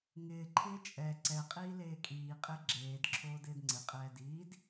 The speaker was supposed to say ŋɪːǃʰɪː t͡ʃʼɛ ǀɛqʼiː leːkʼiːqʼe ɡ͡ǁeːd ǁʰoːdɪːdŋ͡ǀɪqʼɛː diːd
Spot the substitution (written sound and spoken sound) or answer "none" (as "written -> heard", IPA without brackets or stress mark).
none